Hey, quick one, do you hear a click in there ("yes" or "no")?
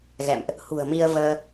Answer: no